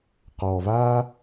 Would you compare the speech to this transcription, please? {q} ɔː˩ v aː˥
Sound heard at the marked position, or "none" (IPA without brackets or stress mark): q